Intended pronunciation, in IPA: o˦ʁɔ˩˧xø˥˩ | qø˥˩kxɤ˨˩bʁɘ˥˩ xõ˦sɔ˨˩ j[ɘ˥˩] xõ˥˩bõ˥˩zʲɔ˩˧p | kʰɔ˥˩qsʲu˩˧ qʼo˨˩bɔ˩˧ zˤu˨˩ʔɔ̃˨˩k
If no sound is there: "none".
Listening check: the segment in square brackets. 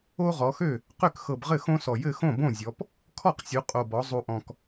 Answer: ɘ˥˩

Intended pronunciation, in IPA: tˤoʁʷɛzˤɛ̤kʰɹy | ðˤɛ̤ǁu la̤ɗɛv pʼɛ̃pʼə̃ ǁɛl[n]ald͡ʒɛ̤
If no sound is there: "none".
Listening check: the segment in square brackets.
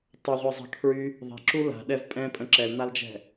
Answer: n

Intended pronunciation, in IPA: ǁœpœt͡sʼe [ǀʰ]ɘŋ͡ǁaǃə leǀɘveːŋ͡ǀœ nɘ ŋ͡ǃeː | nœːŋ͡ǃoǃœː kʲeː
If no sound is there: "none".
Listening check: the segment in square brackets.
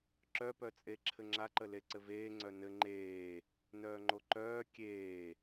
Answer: ǁʰ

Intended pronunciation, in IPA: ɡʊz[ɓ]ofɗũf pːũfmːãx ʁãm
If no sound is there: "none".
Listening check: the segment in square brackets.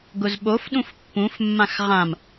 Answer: ɓ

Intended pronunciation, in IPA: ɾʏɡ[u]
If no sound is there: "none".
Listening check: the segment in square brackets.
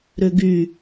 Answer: y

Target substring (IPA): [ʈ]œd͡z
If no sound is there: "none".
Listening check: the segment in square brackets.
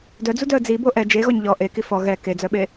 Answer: d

